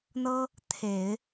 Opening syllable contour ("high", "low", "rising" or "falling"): high